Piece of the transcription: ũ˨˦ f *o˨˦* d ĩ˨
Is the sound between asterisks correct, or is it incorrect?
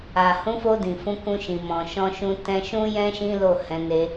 incorrect